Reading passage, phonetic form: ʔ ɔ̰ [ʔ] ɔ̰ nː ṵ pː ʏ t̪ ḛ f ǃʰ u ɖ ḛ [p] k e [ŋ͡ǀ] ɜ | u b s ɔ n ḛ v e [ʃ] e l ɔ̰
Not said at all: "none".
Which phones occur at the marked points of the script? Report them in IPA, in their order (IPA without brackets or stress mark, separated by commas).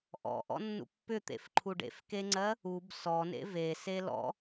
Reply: ʔ, f, ŋ͡ǀ, s